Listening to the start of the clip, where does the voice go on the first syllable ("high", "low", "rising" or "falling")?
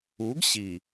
rising